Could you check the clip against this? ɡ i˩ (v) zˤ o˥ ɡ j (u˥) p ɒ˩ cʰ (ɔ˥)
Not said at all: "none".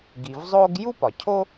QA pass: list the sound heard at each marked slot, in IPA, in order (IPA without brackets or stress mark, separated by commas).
v, u˥, o˥